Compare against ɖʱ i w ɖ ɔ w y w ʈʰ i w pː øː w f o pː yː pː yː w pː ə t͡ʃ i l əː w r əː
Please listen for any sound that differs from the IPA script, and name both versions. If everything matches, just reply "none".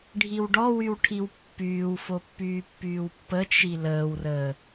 øː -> yː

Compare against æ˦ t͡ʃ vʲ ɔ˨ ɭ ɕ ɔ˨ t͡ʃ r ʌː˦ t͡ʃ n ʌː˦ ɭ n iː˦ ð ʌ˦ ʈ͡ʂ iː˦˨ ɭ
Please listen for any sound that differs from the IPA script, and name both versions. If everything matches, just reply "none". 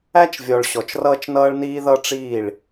none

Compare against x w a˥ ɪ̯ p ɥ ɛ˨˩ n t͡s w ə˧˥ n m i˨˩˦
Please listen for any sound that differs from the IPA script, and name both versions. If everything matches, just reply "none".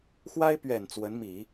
none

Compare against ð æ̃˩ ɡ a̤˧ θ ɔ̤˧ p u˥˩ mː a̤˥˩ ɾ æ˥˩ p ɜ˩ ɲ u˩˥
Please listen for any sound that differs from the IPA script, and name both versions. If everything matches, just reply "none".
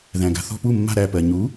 none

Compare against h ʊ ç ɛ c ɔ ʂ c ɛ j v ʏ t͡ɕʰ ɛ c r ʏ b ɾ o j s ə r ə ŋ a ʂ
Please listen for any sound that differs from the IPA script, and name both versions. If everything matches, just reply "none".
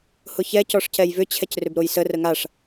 none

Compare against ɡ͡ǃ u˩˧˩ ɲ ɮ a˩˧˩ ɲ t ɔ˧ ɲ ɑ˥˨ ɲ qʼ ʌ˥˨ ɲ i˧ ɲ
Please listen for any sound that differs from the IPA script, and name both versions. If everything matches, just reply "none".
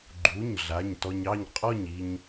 ʌ˥˨ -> ɔ˥˨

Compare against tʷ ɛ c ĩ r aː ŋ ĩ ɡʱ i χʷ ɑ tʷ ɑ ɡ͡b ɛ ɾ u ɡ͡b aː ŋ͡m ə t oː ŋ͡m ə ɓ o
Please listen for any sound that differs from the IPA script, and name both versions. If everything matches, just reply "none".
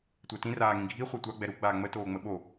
c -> t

